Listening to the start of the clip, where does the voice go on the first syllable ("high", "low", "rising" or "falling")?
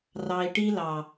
low